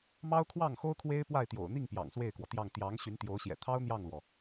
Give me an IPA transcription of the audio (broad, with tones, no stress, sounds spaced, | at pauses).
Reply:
m ɑ˥ ʊ̯ kʰ w ɑ˥˩ ŋ x o˥ ʊ̯ kʰ w e˥ ɪ̯ p w a˥˩ ɪ̯ t̪ j o̰˨˩ ʊ̯ n̪ i˥˩ ŋ p j ɑ̰˨˩ ŋ s w e˥˩ ɪ̯ k w ɔ˩ t̪ j ɑ˥˩ ŋ t̪ j ɑ˧˥ ŋ ɕ y˧˥ n t̪ j o˧˥ ʊ̯ ɕ j ɛ̰˨˩ t̪ʰ ɑ˥ ʊ̯ n̪ j ɑ˥˩ ŋ l w ɔ˩